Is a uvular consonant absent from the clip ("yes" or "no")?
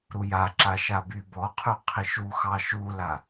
no